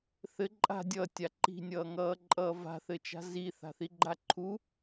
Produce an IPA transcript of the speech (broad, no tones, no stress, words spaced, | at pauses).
θɘ ǃʼa̤ dʲʌːtʲa ǃi̤nʲʌːŋʌːǃʼʌː va̤θɘt͡ʃa̤ zi θa̤θiɡ͡ǃaǃʰu